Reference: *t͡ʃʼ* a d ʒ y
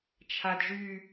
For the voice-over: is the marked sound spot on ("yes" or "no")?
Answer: no